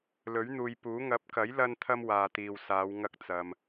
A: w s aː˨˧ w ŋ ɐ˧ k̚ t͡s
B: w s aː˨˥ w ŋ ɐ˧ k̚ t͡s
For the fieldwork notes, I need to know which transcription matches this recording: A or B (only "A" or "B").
A